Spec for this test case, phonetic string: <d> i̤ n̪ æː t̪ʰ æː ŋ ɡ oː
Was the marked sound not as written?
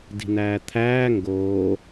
no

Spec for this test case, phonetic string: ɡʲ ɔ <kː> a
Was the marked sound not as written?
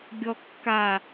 no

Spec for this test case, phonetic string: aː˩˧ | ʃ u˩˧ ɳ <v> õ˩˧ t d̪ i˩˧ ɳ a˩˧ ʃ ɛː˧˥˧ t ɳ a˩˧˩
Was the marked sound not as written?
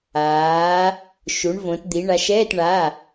no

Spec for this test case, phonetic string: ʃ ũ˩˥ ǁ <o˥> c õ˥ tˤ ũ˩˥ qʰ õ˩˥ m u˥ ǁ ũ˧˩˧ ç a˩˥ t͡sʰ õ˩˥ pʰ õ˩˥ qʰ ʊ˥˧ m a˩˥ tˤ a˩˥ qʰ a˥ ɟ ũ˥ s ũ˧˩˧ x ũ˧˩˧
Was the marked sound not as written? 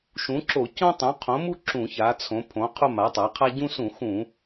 yes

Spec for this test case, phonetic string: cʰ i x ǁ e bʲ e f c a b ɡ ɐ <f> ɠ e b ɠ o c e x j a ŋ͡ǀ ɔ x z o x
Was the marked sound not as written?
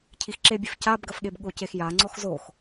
no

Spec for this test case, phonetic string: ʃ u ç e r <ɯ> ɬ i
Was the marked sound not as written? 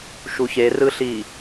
no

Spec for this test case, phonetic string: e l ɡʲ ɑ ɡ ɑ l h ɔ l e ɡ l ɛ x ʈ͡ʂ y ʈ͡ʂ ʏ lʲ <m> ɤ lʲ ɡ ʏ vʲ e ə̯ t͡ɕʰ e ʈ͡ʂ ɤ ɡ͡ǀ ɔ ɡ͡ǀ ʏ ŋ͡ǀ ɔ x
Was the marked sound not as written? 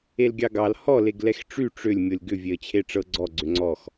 yes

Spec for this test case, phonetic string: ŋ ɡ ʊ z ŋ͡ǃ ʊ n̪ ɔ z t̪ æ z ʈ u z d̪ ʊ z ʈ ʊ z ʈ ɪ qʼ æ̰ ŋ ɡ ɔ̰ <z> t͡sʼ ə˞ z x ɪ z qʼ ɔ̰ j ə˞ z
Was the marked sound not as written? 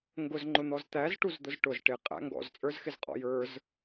no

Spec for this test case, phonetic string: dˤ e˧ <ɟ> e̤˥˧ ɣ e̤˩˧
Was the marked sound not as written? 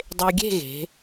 yes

